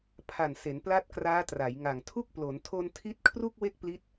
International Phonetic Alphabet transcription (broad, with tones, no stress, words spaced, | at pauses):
pʰa˨˩nse˩˦n pla˦˥t̚kraː˦˥ tra˩˦jŋa˨˩ŋtʰu˥˩k̚ plo˩˦ntʰo˧n tʰi˦˥t̚kʰru˥˩k̚ we˥˩k̚pli˦˥t̚